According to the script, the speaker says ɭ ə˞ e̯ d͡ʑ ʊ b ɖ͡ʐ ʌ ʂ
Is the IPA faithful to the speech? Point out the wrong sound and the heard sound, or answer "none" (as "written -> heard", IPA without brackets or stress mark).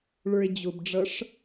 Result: none